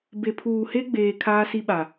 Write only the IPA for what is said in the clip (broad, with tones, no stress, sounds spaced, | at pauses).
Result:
b e˨ pʰ uː˨ h e˦ ɡ͡b eː˨ kʰ aː˦ s i˦ ɓ a˨